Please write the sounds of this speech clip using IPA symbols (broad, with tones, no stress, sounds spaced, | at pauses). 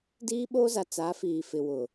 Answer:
d iː˦ ɓ oː˦ z a˨ t͡s a˨˦ f iː˨ f ɪ˨ w ʊ˨